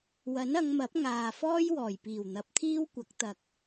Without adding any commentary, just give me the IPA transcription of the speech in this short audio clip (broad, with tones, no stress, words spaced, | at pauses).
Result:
wɐ˨˥nɐ˨˧ŋmɐ˨˥p̚ ŋaː˨ fɔː˥jwɔː˨˩j piː˨˩wn̪ɐ˨˥p̚t̪ʰiː˥wkʷɐ˨˥k̚ t̪ɐ˨k̚